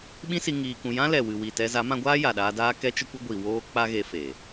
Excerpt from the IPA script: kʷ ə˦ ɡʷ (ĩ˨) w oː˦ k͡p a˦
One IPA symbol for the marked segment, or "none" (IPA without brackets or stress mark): i˨